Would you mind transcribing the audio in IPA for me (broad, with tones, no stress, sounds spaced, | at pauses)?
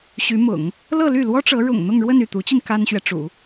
ɕ y˧˥ m ʊ̰˨˩˦ ŋ | l ɤ˥˧ l y˥˩ l w ɔ˥ ʈ͡ʂ ɤ˧˥ ɻ ʊ̰˨˩ ŋ n̪ ʊ˥˧ ŋ ɻ w ə˥˧ n y˥˩ t̪ u˧˥ t͡ɕ i˧ n k a˥ n ɕ ɥ ɛ˨ ʈ͡ʂ ṵ˨˩˦